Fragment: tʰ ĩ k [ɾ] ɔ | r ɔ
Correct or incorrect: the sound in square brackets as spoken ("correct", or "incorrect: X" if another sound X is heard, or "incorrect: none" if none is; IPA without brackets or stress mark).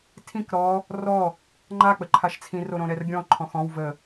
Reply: correct